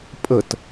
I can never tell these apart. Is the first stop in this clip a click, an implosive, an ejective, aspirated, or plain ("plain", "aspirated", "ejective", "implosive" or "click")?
ejective